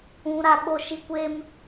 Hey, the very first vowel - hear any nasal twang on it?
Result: yes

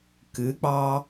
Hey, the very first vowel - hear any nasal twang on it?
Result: no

